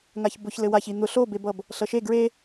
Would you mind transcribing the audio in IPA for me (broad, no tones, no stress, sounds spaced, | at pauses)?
ŋ a ç b ʊ ç l ɘ w a ç i n̪ ʊ ɬ o b e b ʌ b | ɬ ʌ ʃ e ɡ ɹ e